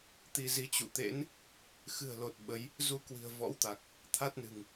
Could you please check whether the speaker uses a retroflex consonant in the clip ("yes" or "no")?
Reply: no